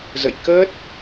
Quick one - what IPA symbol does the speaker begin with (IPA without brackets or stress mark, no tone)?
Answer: z